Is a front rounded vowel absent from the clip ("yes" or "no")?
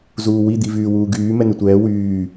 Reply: no